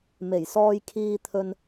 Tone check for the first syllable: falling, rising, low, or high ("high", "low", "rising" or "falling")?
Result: low